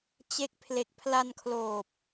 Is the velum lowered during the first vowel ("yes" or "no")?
no